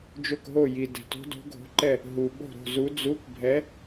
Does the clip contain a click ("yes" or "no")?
yes